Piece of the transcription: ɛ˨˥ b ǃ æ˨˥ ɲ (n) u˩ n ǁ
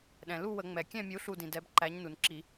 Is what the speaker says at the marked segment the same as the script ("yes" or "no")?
yes